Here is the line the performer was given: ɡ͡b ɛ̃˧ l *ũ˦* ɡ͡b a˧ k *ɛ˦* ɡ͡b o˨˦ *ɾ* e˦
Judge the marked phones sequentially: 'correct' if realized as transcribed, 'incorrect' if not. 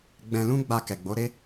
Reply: correct, incorrect: ɛ˨, correct

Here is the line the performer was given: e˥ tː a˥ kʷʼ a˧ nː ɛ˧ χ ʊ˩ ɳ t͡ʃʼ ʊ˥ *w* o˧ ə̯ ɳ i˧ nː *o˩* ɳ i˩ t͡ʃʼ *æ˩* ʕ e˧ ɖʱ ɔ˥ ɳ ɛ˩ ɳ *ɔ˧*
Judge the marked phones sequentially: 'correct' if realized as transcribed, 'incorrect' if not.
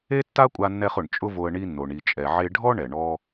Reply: incorrect: v, correct, incorrect: ɛ˩, correct

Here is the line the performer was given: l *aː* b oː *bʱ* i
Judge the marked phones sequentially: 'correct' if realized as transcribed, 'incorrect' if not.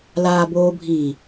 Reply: correct, correct

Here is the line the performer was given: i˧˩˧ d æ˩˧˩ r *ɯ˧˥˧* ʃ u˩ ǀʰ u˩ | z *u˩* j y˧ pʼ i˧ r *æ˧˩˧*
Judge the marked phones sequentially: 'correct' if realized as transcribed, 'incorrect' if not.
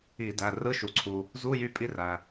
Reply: correct, incorrect: u˧˥˧, incorrect: æ˩

